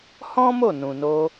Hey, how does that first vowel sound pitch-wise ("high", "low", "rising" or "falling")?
high